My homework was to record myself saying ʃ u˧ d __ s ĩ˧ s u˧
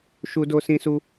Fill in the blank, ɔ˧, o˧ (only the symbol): o˧